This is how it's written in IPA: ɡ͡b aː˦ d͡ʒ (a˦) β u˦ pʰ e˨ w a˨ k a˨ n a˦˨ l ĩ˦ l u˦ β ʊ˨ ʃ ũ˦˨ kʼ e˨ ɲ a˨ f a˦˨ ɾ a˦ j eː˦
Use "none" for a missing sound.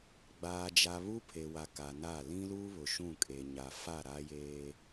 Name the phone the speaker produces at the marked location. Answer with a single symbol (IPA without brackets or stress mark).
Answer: a˦